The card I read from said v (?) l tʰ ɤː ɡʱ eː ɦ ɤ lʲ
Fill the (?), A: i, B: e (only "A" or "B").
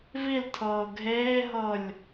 A